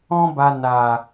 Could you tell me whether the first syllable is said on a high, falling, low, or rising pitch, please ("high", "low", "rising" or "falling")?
high